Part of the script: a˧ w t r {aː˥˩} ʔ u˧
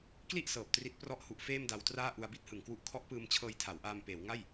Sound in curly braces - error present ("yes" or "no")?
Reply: no